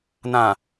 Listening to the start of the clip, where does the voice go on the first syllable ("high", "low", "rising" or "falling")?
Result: low